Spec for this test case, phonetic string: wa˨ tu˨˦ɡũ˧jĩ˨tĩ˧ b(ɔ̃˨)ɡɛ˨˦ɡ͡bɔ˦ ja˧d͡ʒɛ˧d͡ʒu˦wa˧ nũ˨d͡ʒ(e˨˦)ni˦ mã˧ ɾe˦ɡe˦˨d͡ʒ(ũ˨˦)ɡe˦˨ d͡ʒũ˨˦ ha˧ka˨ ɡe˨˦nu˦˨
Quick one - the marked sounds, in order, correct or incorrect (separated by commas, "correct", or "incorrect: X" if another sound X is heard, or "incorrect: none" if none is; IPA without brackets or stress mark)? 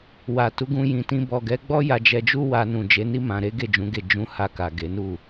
incorrect: ɔ˨, correct, correct